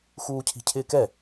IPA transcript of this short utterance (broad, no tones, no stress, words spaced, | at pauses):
xuːcʰi̤cʰɪːkɛ